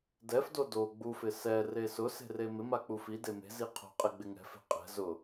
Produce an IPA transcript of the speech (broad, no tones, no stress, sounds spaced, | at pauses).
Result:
d ɛ f d o d o ɡ͡b u f ɪ s ɛ r e s ʊ s e̤ r e m ɪ m a k͡p u f i d e m e̤ z i qʰ o̤ qʼ e ɡ͡b ɪ ŋ ɛ̤ f e̤ qʼ ɛ̤ z ʊ